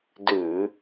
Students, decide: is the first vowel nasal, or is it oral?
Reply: oral